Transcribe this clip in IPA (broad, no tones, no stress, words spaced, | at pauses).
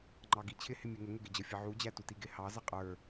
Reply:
ŋ͡ǃɑɡit͡ɕʰɪ hɪmʲɛŋə ŋʊɡɪd͡ʑə fʲəʕu d͡ʑætutiɡɪ hɑ zʌqʼə˞